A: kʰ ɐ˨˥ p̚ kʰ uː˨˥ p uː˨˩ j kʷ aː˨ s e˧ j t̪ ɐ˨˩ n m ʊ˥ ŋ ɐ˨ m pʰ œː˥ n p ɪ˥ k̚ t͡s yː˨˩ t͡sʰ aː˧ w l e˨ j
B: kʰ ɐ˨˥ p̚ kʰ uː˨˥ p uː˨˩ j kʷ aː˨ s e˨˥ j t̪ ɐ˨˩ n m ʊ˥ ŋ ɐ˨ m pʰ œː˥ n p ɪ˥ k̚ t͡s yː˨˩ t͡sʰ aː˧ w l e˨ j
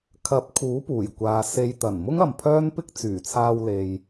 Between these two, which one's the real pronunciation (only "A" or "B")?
A